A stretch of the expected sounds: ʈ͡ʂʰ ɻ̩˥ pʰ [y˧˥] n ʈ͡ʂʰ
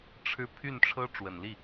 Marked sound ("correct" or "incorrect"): incorrect